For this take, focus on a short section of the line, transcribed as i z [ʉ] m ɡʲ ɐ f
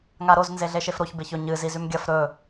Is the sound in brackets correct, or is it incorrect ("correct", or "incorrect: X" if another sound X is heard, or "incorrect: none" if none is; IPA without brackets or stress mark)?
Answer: correct